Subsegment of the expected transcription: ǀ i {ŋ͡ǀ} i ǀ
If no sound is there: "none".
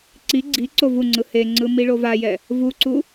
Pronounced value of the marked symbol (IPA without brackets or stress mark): ɡ͡ǀ